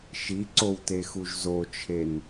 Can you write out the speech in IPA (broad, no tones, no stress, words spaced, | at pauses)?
ʃiǀowtexuʒ zot͡ʃʰen